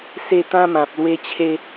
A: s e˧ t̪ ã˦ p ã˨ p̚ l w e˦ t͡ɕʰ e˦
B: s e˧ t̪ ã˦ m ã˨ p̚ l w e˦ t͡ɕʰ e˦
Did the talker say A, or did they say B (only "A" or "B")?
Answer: B